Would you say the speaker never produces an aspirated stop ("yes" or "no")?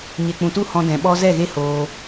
yes